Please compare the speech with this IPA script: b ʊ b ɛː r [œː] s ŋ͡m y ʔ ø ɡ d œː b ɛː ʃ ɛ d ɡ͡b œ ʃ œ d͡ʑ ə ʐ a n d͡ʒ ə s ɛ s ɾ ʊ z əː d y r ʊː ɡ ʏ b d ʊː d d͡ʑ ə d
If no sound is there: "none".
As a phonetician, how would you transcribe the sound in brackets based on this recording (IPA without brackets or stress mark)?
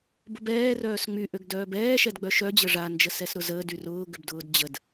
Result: œː